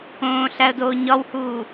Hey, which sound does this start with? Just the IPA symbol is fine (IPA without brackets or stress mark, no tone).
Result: õː